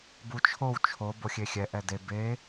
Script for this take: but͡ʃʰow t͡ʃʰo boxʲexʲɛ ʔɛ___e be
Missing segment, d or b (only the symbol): d